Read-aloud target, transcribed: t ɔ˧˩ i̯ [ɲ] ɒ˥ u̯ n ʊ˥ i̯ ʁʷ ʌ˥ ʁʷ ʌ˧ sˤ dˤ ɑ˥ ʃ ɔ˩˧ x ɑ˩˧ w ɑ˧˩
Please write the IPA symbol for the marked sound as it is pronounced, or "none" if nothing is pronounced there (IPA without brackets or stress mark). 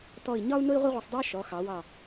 ɲ